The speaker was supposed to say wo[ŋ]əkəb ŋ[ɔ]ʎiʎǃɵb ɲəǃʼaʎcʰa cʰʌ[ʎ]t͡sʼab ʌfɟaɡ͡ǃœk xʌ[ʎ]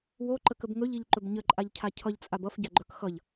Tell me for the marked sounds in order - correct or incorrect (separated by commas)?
incorrect, incorrect, correct, correct